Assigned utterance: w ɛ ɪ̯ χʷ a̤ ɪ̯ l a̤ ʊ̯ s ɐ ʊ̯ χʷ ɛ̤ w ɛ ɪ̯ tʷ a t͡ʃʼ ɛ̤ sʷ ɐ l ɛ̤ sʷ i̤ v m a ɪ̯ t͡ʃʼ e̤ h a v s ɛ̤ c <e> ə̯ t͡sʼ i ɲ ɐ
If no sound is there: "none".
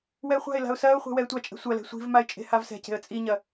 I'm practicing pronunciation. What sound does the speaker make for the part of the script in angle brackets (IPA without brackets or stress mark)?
e̤